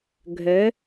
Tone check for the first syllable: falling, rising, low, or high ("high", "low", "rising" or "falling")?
rising